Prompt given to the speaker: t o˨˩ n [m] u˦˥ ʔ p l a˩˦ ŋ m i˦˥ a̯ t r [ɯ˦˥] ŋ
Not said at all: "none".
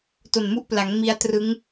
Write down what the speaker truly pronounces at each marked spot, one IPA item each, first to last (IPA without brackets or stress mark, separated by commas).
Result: m, ɯ˦˥